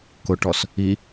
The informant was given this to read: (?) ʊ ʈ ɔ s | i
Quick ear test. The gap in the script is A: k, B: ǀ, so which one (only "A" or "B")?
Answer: A